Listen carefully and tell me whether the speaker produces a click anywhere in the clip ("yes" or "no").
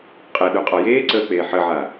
yes